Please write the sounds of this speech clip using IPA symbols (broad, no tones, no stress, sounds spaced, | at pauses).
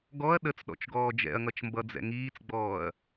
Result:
ɡ ɔ ɐ̯ ɗ ə t͡s ɗ ɔ̰ t͡ʃ ɡ ɔː d͡ʒ ɛ̰ ɐ̯ ŋ ʌ t͡ʃ m b ʌ d͡z ɛ̰ ŋ iː t͡s ɡ͡b ɔː ɐ̯